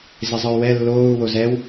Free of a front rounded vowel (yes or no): no